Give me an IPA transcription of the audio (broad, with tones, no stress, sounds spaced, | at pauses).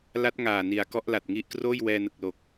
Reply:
l a˦˥ t̚ ŋ aː˨˩ n i˨˩ a̯ k ɔ˥˩ ʔ l a˨˩ t̚ ŋ i˥˩ ʔ k r oː˥˩ j w ɛː˧ n ɯ˨˩ k̚ l o˨˩ k̚